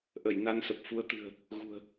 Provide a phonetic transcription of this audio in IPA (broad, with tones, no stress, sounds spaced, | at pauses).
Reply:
ʔ ə˧˩ j n a˧ n s ə˨˩ p̚ f u˨˦ ə̯ t̪ ɨ̤˨˩ ə̯ | ɣ ṳ˨˩ ə̯